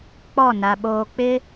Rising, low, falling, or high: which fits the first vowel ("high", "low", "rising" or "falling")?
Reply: falling